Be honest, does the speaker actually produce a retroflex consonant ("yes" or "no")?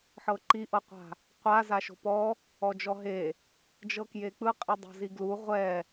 no